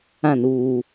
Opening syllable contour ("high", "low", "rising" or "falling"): falling